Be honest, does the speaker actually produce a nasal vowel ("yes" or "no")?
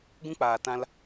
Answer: yes